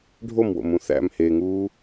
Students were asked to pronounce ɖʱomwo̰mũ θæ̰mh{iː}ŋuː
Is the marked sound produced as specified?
no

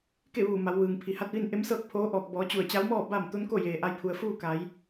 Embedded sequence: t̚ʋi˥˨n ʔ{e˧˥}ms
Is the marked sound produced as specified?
yes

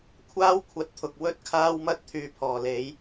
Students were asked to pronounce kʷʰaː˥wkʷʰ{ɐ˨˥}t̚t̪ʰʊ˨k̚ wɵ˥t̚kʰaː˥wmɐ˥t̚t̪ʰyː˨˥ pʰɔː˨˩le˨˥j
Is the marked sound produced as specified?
yes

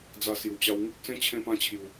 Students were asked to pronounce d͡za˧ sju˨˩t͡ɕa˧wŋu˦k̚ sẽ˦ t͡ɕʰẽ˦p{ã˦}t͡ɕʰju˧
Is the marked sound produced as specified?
yes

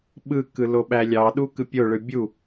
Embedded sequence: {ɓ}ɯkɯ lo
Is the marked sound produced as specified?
yes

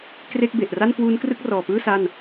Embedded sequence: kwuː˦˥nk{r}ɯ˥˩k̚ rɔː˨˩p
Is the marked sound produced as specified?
yes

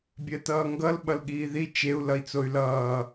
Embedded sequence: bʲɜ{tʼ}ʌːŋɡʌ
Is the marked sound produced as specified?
no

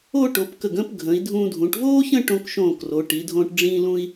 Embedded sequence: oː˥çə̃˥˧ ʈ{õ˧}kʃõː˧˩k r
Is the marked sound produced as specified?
yes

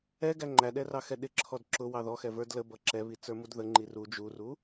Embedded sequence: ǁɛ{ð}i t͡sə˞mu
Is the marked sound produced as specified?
no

